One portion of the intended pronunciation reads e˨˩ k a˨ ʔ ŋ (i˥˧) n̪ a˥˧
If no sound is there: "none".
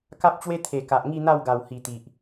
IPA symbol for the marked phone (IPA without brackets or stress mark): i˥˧